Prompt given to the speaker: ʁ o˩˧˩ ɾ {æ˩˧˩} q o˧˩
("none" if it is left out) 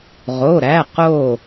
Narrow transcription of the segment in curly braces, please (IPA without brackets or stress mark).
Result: æ˩˧˩